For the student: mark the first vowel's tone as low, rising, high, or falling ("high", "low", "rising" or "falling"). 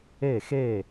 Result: falling